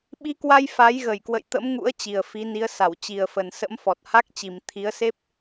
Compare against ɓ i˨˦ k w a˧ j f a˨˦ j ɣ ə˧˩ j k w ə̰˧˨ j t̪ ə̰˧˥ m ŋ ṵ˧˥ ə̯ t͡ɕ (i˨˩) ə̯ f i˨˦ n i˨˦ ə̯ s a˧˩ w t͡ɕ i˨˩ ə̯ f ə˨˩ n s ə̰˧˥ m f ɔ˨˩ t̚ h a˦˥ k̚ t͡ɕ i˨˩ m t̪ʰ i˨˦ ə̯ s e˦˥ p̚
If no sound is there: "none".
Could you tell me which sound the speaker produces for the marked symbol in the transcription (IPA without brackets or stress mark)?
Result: i˨˩